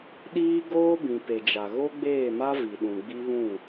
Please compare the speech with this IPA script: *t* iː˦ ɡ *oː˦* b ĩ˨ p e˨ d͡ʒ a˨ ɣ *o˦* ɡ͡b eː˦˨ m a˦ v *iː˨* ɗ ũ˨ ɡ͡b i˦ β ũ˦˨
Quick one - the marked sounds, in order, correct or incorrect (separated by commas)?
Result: incorrect, correct, correct, incorrect